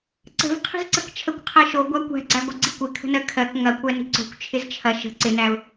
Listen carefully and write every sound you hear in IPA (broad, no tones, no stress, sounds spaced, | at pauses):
ǀ ə̤ v qʰ i̤ z ǀ ə k t͡ʃʰ ə kʷ qʰ ɜ ʃ o ɡʷ æ kʷ æ̤ ɡ͡ǀ æ ɡʷ ɪ ɡ͡ǀ i kʷ ɪ kʰ ə̤ n ɜ kʰ ɜ k ŋ ɐ kʷ æ n i̤ ǀ o̤ kʷ t͡ʃʰ ɪ z t͡ʃʰ ɐ ʃ ə̤ ǀ ɪ n æ ʊ̯